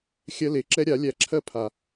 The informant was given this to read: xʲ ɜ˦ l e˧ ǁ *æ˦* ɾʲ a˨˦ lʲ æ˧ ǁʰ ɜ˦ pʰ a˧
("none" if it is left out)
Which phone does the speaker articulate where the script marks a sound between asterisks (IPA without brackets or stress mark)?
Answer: ɛ˦